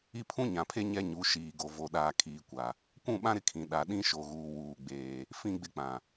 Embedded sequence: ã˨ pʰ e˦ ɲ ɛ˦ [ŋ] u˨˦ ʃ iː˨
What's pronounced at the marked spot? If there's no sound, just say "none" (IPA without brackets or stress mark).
ɲ